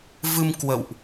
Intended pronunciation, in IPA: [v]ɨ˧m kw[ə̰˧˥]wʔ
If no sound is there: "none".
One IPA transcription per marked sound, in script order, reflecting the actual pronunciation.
v, ə̰˧˨

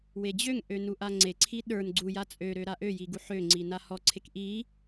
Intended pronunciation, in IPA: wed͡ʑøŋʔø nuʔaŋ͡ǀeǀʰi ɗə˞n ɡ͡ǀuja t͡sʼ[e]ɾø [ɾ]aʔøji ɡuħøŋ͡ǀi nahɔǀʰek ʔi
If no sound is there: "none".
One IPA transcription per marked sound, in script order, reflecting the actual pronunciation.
ø, ɾ

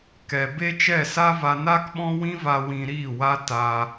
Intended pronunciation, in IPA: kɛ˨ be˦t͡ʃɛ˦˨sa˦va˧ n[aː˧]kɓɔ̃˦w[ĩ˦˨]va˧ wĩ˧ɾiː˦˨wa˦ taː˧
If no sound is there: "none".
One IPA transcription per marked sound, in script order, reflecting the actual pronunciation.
aː˦, ĩ˦

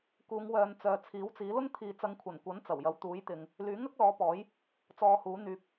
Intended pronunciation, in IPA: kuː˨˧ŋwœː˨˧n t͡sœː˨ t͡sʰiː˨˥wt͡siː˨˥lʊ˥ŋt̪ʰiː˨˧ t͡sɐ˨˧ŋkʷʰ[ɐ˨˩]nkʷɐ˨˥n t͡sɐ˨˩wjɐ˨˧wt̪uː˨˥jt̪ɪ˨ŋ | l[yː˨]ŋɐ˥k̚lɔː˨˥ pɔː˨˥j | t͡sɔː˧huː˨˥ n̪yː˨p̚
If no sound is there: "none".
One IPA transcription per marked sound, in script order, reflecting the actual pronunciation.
ɐ˨˩, yː˨˥

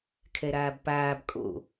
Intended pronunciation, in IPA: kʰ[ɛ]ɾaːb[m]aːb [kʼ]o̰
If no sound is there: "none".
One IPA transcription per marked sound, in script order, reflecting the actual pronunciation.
ɛ, p, kʼ

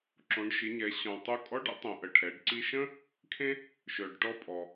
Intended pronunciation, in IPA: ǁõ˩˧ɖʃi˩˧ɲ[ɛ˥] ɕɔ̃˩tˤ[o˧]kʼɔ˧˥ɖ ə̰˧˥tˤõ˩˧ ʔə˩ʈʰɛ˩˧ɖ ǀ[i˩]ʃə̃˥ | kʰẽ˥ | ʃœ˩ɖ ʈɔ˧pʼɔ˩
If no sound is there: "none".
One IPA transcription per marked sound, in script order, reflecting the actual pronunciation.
ɛ˩˧, o˧, i˧

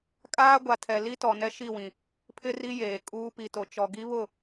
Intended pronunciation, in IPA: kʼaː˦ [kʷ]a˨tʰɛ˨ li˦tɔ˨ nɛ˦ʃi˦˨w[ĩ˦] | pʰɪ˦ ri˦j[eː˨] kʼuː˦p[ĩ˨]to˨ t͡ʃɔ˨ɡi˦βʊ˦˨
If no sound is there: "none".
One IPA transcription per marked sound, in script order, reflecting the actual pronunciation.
ɡʷ, ĩ˨, eː˨, i˨

